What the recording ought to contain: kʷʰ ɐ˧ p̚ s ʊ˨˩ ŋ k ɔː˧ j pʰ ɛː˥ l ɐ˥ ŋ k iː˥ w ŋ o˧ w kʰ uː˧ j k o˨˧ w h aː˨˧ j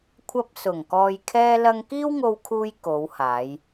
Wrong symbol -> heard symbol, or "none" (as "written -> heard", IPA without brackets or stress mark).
pʰ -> kʰ